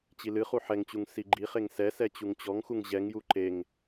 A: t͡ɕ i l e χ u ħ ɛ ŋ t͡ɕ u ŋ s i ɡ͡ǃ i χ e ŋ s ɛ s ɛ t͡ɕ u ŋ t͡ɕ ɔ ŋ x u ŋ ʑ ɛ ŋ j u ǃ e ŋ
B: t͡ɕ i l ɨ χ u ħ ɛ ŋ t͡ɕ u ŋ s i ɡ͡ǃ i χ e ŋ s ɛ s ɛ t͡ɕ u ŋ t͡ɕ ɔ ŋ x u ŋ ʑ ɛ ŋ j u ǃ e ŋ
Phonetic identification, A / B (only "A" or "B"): B